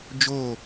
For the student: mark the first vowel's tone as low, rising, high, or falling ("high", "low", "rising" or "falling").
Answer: falling